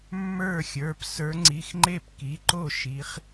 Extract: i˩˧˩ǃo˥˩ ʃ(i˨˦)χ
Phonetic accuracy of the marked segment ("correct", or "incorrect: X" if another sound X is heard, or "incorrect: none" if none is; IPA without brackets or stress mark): correct